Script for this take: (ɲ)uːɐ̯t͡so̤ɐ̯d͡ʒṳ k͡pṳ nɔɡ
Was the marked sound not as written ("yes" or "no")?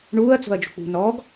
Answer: yes